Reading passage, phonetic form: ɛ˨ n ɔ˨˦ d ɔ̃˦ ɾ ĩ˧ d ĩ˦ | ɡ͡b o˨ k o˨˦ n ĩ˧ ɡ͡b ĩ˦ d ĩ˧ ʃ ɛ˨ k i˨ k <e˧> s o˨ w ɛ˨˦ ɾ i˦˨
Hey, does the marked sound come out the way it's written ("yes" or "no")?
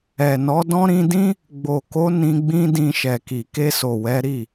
yes